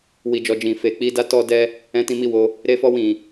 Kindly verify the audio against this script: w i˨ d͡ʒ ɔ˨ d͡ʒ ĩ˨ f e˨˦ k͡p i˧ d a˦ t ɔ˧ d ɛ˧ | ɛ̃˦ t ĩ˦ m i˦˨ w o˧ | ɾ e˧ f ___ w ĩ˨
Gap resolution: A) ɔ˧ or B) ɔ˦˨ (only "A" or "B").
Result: A